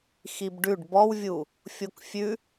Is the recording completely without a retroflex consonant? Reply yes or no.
no